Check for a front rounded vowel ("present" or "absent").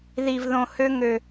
present